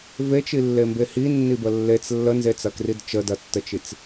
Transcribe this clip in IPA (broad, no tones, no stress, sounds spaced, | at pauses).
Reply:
v e t͡ʃ i lː e m b e h i nː i b ə lː e t͡s lː ə n z e t͡s ɐ k r i d t͡ʃ ə d ɐ tː ə t͡ʃ i t͡s